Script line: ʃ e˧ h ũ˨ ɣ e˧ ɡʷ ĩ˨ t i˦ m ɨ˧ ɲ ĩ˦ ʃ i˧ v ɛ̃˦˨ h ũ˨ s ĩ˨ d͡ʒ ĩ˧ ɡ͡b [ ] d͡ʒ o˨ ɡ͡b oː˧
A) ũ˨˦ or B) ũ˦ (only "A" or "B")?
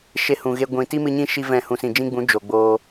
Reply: A